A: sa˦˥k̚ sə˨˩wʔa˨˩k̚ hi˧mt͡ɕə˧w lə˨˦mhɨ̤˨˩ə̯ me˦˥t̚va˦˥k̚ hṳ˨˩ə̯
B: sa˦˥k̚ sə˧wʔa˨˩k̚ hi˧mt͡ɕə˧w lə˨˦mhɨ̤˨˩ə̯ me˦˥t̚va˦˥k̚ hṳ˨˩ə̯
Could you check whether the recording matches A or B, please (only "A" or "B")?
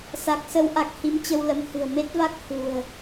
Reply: B